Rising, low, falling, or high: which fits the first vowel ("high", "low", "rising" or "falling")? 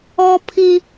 high